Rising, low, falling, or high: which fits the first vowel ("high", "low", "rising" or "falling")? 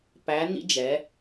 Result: rising